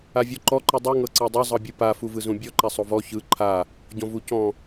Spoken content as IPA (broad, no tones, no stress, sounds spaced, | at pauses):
a vʲ ɔ ǃ ɔ ǃ ɯ dˤ u ŋ ɤ ǀ ɤ dˤ o zˤ ɤ bʲ ɯ p a f u v ɯ z ũ bʲ ɔ ǃ a sˤ o v ɔ ç ɯ ǃʰ a | ɟ ɔ̃ v u c ɔ̃